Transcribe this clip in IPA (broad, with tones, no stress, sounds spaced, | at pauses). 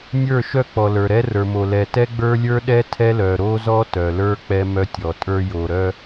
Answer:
nʲ ə˞˦˨ ʃ œ˦ k͡p ɔ˨ l ə˞˨ ɾ ɛ˦ r ə˞˨ m o˨ l ɛ˨ t ɛ˦ ɡ͡b ə˞˦ lʲ ə˞˦ ɗ ɛ˦ tʰ ɛ˦ l œ˨ ɾ o˦ z ɔ˦ t œ˨ l ə˞˦ k͡p ɛ˦ m œ˦ tʲ ɔ˨ tʼ ə˞˦ j o˨ ɾ œ˦